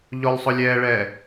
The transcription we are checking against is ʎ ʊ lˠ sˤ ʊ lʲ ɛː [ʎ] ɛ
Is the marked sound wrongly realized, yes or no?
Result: yes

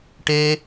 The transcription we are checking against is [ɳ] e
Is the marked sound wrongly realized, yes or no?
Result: yes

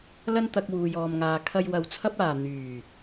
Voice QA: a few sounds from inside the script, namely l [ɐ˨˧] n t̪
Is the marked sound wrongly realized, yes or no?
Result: yes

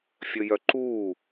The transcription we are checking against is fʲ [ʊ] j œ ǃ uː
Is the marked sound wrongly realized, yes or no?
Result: yes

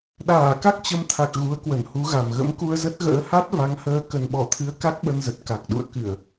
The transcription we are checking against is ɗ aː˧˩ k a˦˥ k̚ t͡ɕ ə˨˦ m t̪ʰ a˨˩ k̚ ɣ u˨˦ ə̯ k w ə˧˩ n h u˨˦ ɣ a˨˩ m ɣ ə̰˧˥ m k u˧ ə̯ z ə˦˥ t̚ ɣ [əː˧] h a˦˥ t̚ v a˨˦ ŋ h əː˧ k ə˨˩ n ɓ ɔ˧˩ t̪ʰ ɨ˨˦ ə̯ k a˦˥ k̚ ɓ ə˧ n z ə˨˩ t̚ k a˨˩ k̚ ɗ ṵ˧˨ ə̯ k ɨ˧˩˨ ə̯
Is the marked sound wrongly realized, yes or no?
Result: yes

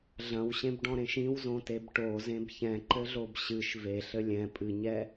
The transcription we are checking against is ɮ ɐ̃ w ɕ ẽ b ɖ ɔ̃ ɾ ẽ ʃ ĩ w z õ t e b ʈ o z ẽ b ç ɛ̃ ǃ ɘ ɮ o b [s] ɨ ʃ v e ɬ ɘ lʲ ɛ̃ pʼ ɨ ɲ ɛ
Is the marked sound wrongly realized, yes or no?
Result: yes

